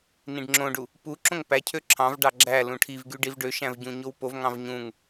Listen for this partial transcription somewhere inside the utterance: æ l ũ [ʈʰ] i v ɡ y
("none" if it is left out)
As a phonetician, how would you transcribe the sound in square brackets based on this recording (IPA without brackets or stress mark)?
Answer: ʈʰ